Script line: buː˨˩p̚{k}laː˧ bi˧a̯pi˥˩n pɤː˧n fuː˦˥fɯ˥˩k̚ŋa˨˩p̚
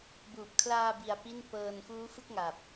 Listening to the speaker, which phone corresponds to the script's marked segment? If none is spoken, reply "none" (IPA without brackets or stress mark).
kʰ